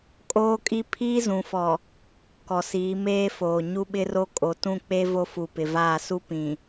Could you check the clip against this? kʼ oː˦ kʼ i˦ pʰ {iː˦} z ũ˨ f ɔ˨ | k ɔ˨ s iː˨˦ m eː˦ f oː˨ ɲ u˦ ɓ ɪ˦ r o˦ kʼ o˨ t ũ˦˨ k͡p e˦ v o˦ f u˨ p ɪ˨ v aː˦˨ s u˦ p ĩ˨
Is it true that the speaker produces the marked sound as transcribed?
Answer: yes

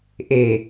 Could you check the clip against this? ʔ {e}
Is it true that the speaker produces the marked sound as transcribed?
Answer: yes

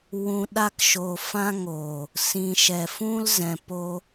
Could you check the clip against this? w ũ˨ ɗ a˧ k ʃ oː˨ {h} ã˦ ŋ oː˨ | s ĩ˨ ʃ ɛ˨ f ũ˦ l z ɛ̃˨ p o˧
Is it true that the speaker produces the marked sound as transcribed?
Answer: no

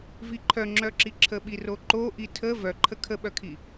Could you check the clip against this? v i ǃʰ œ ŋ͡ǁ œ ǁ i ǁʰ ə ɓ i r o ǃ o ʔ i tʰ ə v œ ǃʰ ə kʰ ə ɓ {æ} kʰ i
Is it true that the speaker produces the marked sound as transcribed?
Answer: no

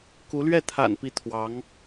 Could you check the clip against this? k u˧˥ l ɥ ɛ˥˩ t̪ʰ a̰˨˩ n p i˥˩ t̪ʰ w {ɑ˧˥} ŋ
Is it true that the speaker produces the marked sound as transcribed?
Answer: yes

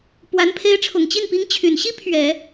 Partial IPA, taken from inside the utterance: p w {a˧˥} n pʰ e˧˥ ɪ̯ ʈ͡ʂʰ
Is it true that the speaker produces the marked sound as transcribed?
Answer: yes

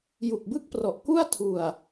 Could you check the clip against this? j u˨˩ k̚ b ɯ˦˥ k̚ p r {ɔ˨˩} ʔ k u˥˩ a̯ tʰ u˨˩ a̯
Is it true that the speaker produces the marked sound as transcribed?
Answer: yes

